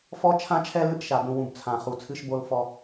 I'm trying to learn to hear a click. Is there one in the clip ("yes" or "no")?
no